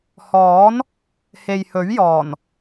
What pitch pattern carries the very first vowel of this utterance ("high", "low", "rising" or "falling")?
rising